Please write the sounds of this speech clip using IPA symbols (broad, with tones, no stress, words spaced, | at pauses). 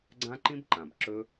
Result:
ɡ͡ǀã˦ǃĩ˦bǃã˨b ǁɵ˦